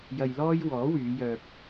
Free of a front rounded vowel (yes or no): no